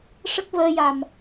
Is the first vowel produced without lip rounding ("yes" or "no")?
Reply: yes